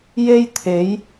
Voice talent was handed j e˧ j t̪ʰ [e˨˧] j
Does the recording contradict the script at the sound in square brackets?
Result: no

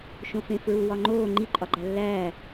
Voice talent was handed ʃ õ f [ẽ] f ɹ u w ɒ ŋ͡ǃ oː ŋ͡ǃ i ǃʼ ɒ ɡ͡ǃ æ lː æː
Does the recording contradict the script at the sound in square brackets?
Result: no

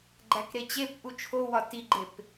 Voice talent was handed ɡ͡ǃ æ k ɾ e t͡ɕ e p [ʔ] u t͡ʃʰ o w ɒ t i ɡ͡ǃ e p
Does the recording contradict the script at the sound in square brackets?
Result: no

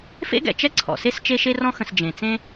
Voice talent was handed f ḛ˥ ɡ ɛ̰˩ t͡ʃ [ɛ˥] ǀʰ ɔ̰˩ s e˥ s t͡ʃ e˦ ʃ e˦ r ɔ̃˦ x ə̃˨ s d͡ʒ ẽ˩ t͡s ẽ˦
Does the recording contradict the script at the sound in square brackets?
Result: no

